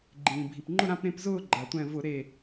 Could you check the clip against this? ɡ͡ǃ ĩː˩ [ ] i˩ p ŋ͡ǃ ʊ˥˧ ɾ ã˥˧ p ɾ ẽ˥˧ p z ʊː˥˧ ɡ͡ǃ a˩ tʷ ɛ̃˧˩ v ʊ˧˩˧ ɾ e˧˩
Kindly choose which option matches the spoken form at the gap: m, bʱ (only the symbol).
bʱ